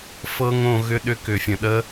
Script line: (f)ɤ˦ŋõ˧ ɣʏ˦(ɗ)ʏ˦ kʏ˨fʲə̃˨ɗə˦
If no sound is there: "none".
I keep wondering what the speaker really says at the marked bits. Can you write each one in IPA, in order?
f, ɗ

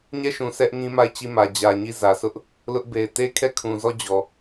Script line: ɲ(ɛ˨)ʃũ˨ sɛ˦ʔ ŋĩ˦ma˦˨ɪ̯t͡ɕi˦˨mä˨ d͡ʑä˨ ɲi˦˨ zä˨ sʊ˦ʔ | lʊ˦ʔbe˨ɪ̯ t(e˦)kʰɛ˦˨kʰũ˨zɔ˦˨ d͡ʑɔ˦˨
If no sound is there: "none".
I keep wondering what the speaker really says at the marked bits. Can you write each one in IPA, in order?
ɛ˦˨, e˦

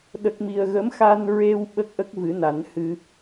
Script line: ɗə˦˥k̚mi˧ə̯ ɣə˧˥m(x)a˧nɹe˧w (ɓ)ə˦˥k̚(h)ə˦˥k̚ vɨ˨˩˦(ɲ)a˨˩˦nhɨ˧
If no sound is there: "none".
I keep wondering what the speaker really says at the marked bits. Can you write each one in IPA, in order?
x, ɓ, ʔ, n

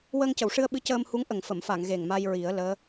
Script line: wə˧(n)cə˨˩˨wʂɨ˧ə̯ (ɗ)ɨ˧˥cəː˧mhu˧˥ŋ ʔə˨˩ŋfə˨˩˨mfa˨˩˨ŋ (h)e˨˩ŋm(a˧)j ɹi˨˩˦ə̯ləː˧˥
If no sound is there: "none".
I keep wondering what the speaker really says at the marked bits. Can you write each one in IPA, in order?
ŋ, ɓ, ɣ, a˧

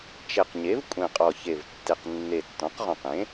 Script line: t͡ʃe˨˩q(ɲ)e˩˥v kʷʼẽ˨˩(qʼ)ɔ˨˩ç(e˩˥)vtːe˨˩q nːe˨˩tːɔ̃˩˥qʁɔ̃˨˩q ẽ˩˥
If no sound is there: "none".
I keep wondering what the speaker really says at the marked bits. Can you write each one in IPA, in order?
ɲ, qʼ, e˨˩

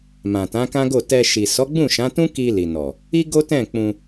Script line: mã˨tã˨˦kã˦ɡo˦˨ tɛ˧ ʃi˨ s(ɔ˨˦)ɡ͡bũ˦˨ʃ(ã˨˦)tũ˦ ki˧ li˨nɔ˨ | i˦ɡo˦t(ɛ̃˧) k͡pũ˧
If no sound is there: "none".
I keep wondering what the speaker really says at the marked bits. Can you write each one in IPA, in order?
ɔ˨˦, ã˨˦, ɛ̃˦˨

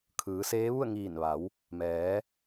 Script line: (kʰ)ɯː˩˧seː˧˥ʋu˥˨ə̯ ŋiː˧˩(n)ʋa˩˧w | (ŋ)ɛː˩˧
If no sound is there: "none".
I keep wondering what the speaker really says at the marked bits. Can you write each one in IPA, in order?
kʰ, n, m

